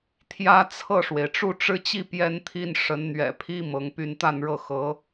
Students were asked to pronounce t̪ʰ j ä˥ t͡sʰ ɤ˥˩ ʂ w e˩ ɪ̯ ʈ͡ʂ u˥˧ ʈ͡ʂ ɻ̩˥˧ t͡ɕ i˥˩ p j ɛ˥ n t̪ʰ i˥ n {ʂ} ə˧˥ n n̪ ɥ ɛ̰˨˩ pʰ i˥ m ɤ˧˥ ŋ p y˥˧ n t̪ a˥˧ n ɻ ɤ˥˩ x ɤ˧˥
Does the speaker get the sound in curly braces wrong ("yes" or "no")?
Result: no